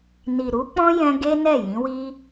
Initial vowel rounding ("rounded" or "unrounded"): unrounded